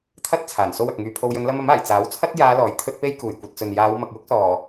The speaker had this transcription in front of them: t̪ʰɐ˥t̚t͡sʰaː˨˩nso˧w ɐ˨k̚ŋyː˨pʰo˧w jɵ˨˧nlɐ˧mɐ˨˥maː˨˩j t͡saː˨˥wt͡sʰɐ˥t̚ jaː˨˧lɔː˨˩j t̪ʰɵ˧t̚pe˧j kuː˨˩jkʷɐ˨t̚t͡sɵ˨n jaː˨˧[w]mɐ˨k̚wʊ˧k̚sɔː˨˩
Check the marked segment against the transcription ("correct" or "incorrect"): correct